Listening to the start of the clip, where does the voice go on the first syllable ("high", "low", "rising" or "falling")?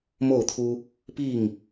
falling